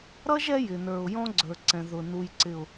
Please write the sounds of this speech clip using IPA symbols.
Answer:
ɾ ʌ˦ ʒ ɛ˦ j ɪ˨ n ə˞˨ ʊ̯ j ɔ̃˦ ɡ͡ǀ ə˞˨ ǀ ɛ̃˨ ð ʊ˨ n u˨ j ǀ ɪ˨ ʊ̯

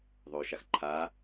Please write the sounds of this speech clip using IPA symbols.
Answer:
ðˤ o ʃ a x ǃʰ a

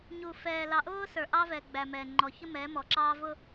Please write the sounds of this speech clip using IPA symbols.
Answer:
ɲ u˨ f ɛː˨ l ɑ˨ ʔ ʊː˦ s ə˞˨ ʔ ɑ˦ v ɛ˨ ɡ͡b æ˨ m ɛ˨ ŋ͡ǃ ɔ˨ ç ə˦ m ɛː˨˦ m ɔ˨ ǁ ɑː˦ v ʊ˦

